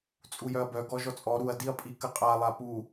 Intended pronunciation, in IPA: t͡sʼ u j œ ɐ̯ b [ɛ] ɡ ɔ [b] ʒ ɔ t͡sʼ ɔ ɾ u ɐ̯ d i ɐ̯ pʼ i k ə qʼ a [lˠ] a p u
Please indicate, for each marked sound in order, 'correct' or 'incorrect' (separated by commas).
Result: incorrect, incorrect, correct